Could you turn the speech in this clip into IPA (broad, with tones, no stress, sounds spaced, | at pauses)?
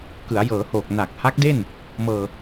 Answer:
k ɯ˩˦ a̯ j ɤː˩˦ h oː˨˩ k̚ n a˨˩ k̚ h a˦˥ k̚ d e˥˩ n | m ɤː˧